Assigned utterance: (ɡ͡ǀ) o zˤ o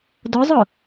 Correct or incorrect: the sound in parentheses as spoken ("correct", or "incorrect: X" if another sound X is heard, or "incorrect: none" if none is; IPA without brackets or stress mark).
incorrect: d